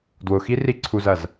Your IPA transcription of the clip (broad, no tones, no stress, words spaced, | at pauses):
dwʊxi riǀʰuzɐz